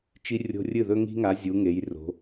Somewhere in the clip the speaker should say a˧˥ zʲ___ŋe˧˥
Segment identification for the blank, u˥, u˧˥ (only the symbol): u˧˥